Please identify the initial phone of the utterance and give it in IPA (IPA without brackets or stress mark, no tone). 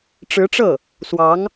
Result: ʈ͡ʂ